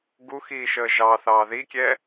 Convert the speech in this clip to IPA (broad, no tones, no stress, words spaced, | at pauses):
ɡuxiːʃəː ʒɑθɑː ðikʲɛ